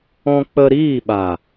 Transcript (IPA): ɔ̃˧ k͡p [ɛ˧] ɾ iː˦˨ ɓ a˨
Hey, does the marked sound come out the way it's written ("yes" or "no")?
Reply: no